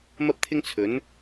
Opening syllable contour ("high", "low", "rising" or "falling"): high